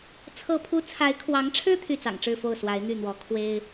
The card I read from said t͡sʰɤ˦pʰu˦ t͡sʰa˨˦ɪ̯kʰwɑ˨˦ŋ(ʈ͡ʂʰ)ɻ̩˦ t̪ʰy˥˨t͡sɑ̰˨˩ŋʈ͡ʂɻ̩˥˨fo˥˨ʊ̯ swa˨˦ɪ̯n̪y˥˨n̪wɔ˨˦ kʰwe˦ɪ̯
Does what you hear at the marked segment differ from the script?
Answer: no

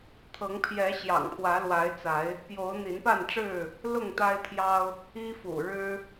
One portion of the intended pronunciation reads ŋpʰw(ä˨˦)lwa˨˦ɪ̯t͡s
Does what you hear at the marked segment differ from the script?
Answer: no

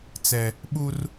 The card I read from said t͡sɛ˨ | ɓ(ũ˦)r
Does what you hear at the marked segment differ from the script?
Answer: yes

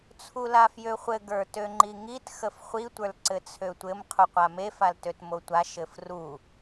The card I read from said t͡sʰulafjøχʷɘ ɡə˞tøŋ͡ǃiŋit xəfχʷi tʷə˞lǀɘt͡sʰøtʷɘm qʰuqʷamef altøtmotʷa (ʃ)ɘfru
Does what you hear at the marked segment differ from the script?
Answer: no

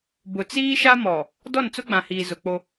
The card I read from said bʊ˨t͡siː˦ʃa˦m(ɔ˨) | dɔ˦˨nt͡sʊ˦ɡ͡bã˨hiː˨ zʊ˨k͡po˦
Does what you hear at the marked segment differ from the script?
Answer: no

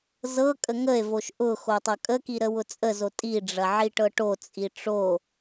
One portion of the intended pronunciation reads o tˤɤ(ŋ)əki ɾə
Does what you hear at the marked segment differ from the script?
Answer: yes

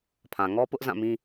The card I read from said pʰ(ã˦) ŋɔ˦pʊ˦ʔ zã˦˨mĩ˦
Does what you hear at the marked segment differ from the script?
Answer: yes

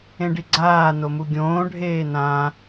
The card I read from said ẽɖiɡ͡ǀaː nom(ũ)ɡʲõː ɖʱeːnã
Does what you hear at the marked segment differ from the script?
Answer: yes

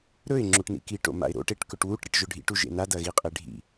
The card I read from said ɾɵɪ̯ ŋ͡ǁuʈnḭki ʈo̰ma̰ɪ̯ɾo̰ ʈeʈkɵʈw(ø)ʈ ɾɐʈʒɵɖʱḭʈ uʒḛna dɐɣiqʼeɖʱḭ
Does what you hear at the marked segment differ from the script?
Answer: yes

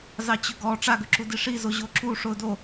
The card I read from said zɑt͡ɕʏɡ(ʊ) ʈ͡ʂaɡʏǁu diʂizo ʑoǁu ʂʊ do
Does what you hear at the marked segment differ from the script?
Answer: yes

